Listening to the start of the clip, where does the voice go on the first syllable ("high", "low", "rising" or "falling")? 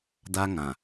high